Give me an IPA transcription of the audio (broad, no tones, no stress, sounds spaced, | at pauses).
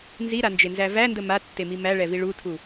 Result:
n z i ɾ a n d͡ʒ e n z æ v æ n d ə m a tː e m i m æ ɭ ɛ v i ɭ u tʰ u